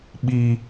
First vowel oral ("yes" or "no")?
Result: yes